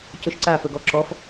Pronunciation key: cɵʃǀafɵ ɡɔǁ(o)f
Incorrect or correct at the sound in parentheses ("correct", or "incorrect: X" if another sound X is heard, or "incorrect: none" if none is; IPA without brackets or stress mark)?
incorrect: ɔ